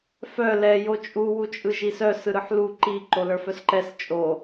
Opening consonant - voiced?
no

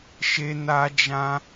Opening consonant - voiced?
no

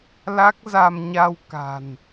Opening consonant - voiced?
yes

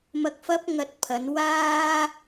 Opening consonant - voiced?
yes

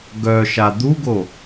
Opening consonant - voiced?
yes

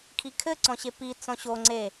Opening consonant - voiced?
no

